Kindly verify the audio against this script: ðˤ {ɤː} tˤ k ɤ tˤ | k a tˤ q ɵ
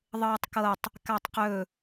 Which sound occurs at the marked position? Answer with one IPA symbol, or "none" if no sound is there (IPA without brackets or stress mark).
ɤː